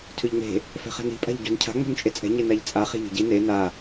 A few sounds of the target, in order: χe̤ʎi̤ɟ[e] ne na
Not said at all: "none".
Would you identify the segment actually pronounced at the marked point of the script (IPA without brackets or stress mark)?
i